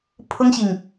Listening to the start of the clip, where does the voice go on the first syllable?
high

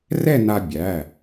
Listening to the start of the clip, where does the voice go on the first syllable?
falling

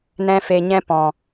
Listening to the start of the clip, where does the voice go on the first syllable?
high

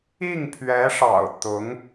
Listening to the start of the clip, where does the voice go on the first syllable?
falling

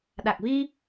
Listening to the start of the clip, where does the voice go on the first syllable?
low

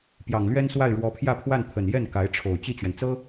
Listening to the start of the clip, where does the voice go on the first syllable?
low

